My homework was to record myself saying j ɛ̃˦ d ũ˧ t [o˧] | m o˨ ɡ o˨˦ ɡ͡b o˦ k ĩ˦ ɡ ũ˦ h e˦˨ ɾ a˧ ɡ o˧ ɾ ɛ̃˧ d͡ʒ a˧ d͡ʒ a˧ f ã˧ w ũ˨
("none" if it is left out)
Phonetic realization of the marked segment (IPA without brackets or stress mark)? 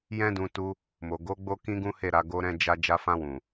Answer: u˧